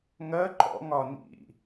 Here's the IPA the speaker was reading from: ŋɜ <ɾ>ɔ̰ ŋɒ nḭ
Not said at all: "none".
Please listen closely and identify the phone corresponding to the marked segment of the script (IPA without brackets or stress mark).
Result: ǃ